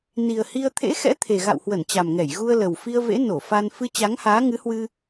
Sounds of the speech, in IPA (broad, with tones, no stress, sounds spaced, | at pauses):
n i˨˩ ə̯ h i˧ ə̯ t̪ʰ ḛ˧˥ x ɛ̰˧˥ t̪ʰ e˨˩ ɣ a̰˧˨ w h w ə˧˩ n t͡ɕ a˨˩ m ŋ ɛ˧˩ j ɣ u˧ ə̯ l ə˨˩ w f i˧ ə̯ v ḛ˧˥ n o˧˩ f a˧ n f ɨ˧ t͡ɕ a˨˦ ŋ h aː˨˦ ŋ ɨ˨˦ h w ɨ˧